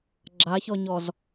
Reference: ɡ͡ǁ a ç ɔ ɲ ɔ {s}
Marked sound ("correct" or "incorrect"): incorrect